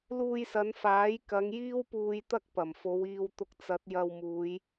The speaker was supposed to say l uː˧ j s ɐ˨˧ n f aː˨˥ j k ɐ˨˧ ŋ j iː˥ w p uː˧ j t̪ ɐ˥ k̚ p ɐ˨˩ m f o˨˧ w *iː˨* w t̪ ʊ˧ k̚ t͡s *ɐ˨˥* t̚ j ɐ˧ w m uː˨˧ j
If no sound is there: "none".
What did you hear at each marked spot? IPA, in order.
iː˧, ɐ˨˥

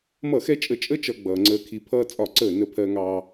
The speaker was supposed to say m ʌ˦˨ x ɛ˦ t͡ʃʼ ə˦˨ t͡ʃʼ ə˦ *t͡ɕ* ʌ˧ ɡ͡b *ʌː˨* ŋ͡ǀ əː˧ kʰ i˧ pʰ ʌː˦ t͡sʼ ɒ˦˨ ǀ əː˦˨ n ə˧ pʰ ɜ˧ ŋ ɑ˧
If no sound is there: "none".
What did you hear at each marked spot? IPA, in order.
t͡ʃ, ʌː˨

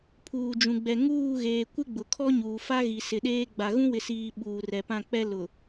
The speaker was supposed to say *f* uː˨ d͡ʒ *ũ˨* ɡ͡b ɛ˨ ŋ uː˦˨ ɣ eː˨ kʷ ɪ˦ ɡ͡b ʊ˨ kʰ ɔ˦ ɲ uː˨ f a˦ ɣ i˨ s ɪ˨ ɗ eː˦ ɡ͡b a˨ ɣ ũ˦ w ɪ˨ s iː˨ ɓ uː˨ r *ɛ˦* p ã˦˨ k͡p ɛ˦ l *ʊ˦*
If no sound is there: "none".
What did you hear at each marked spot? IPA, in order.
pʰ, ũ˨, ɛ˨, ʊ˨

